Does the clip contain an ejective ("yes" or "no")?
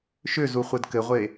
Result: no